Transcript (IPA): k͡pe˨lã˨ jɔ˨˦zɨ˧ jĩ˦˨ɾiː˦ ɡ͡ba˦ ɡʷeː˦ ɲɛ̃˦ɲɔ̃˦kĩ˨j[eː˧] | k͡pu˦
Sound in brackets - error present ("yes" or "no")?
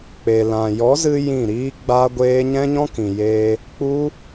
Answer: no